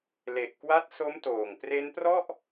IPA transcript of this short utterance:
le˨˩ʔkwa˦˥t̚so˦˥mtoː˨˩ŋ pre˦˥nprɔ˥˩ʔ

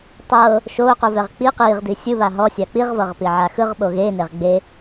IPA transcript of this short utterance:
tˤɤː | ʃoːquvɛʁ k͡pi qiːʁdi sʲɯβa ɦɔsʲa k͡piʁvɤʁpiʕa xɯʁɓo ɣeneʁ ɡ͡be

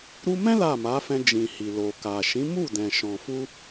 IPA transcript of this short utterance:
ɾu˦ mɛ̃˦ la˦˨ma˨˦fɛ̃˧ d͡ʒĩ˨hi˨ lo˨ka˨ ʃĩ˨˦ mu˦˨dɛ̃˨ ʃɔ̃˨fu˧

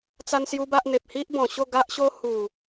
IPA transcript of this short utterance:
t͡sa˧n sju˦ba˦ʔ n̪e˨p̚hi˦ʔbɔ̃˨˩ɕo˥˧ ɡa˦ʔɕo˦ hu˨˩

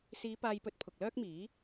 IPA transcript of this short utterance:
siː˨˧ paː˧jpɵ˧t̚ pʰʊ˨k̚lœː˥k̚miː˨˥

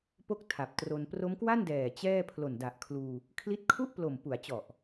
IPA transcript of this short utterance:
po˥˩k̚tʰa˨˩p̚tro˧n pro˦˥mkwa˥˩ndɛː˨˩ t͡ɕɛː˥˩ pʰlo˨˩nda˨˩ʔkʰluː˧ | kʰli˦˥t̚kʰu˥˩ʔplo˨˩m pu˩˦a̯t͡ɕɔ˨˩ʔ

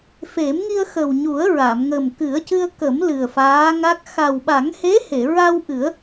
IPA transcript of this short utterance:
fe˨˩˦mŋi˧ə̯ xə˨˩wɲu˨˩˦ə̯ɹa˨˩˨mŋə˨˩m kɨ˨˩˦ə̯cɨ˧ə̯kə˨˩˦m lɨ˨˩ə̯faː˧˥ŋa˦˥k̚ xa˨˩wɓa˨˩˦ŋhe˧˥he˨˩˨ ɹa˧wʔɨ˨˩˦ə̯

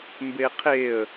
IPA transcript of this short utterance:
mbeqʰeə̯

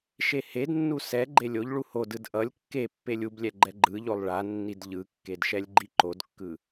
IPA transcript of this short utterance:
ʃehednːu sɛ ɡ͡ǃelʲoʎɭu hodɯd ʔʌlʲ kːepːelʲ ublʲɛ ɡ͡ǃɛɡ͡ǃɯʎolˠ ɭanːid ʎɯkːed ʃɛlʲɡ͡ǃiǃodkːɯ

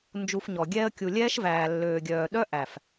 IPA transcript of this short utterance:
nd͡ʒu˧fɲɔ˨ ɡʲɛː˧ə̯kʲu˨ lʲɛː˦ʃ væː˨lːøː˨ɡʲœː˨ ɗœ˦ʔæ˨f

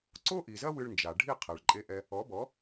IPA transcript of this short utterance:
ǀo˥ʔi˩zɐ˥ wɨ˧ɭnd͡ʒa˩ɖʱi˥˩qʰɛ˩ɭ ǃʼe˧ʔɛ˧ | ɔ˩˥bɔ˩˥

